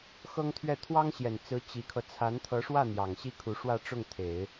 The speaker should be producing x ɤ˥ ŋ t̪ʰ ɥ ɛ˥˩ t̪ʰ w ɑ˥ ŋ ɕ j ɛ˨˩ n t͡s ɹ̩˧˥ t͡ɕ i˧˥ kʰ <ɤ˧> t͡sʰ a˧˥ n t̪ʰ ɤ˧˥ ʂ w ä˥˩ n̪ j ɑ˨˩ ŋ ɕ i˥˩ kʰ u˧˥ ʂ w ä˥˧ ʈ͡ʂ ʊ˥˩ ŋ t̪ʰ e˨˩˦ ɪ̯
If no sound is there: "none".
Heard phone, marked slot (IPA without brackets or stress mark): ɤ˧